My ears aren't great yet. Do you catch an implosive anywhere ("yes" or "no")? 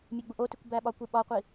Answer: yes